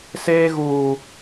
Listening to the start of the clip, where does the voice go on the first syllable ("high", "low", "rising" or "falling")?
high